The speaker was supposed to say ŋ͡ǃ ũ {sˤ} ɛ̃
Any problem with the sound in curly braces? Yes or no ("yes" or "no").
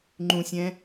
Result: yes